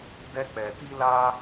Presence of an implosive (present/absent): absent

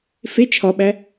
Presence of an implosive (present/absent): present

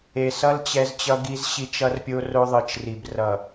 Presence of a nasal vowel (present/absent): absent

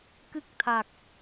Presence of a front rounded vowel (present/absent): absent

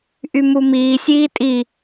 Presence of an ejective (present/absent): present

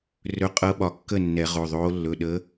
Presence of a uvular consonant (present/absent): present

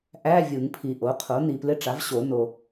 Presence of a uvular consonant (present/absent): present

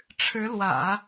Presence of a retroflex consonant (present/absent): present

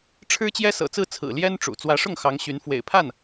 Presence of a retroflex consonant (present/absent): present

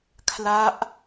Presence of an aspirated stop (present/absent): present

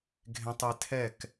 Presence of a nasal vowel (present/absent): present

